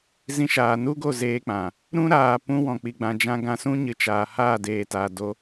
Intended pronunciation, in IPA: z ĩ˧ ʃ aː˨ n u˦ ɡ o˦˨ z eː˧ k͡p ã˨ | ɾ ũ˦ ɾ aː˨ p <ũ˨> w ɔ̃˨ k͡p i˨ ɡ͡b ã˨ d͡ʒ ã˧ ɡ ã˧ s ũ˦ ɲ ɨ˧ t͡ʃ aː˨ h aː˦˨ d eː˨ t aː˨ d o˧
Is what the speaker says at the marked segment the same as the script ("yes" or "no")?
no